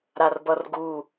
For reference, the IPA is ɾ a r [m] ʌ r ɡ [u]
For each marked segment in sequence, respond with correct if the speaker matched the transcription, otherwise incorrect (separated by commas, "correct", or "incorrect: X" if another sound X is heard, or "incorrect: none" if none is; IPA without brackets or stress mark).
incorrect: b, correct